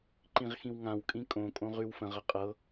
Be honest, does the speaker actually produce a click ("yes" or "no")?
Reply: yes